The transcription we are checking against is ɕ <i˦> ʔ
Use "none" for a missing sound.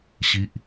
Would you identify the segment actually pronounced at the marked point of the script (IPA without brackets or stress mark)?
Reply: i˦